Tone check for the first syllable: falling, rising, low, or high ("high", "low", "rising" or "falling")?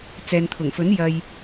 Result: low